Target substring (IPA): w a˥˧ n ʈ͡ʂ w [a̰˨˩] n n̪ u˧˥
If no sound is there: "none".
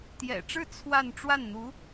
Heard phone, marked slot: a˥˩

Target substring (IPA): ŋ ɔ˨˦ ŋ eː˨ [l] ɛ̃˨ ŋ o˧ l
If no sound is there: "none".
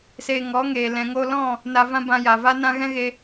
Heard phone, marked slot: l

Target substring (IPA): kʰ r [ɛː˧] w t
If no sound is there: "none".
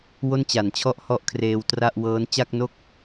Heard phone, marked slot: eː˧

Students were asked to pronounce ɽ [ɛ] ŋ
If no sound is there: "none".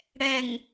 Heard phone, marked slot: ɛ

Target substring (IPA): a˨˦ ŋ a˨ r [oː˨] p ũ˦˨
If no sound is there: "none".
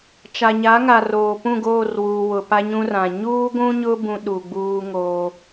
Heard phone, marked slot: oː˨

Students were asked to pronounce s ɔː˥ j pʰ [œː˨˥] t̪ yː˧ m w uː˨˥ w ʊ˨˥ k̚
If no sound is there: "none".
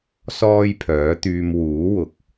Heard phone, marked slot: œː˨˥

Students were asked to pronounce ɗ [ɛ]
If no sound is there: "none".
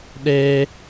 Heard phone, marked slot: e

